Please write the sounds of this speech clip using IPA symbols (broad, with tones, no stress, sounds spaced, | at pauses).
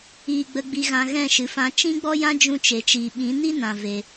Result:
iː˧ ɡ͡b ə˧ ɡ͡b i˧ ɣ ã˧ ɣ ɛ̃˦˨ ʃ ɨ˨ f ã˧ t͡ʃ ĩ˦ ɡ͡b ɔ˦ j ã˦ d͡ʒ ũ˧ t͡ʃ e˨ t͡ʃ iː˨ ɓ ĩ˨˦ n i˦ n ã˨ v e˧